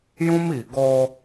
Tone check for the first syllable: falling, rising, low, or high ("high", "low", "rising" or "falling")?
high